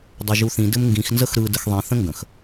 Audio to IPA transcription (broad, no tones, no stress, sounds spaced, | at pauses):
dˤ ɵ ʒ u θ ĩ d ɘ m ŋ ɡ ĩ x n z ə x ɾ ɯ d ə x ðˤ ĩ θ ə̃ ŋ ɡ ə̃ x